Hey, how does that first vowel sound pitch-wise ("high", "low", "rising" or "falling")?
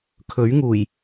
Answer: rising